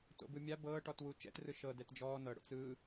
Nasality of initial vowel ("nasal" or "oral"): oral